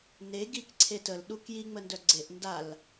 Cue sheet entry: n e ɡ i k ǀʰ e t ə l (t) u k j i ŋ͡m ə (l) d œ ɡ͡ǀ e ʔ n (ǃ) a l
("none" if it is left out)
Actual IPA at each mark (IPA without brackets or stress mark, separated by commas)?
ɗ, n, d